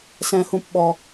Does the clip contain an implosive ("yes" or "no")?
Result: yes